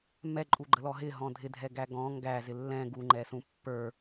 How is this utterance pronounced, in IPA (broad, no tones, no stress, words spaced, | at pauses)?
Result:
mɛǃʼuɡ͡ǃəlɔ ɦɪɦɔ̃ dʱɪdʱɛɡæ ɡɔ̃ ŋɡæzɪ lːɛ̃ ɡuŋ͡ǃɛsũ pːə˞